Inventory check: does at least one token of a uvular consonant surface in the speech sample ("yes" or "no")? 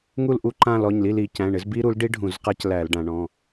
yes